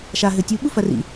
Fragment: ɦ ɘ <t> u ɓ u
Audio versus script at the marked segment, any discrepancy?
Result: yes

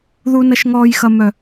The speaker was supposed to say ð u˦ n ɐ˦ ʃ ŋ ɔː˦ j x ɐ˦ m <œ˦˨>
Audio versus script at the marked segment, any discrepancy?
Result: yes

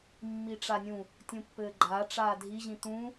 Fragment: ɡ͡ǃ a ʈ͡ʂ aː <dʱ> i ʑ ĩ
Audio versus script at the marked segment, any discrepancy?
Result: no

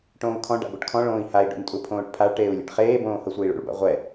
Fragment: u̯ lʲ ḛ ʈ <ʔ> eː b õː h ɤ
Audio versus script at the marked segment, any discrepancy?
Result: yes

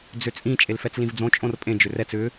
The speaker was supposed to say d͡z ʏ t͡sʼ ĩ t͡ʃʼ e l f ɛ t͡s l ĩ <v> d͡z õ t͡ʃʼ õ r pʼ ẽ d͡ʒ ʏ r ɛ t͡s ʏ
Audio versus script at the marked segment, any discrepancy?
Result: no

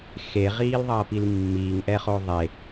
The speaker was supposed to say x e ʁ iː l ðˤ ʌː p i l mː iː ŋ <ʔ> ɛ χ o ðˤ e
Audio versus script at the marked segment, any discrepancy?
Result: no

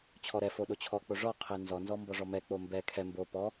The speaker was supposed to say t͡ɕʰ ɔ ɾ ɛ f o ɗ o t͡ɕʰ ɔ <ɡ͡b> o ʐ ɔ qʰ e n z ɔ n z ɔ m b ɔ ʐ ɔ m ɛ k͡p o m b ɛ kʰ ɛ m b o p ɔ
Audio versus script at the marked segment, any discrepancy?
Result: yes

